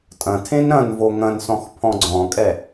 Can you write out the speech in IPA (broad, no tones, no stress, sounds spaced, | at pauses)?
tʼ ɐ̃ tʰ ẽ n ɾ ɐ̃ n v o ŋ ɐ̃ n s ɔ̃ x pʰ ɔ̃ ɡ͡ǀ ɔ̃ kʼ ɛ